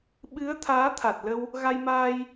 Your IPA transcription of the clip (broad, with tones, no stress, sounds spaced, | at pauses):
ɓ ɨ˨˦ ə̯ t̪ʰ aː˨˦ t̪ʰ a˨˩ t̚ l ə˧ w | ɣ a˧ j m aː˧ j